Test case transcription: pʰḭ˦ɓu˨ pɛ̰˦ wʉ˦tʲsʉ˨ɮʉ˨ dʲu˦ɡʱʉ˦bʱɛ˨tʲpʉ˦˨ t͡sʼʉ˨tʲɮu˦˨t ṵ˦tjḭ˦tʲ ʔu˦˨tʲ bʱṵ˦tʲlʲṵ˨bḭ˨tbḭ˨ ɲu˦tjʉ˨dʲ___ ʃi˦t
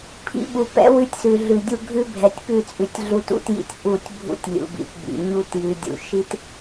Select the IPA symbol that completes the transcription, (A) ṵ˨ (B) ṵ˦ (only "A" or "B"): A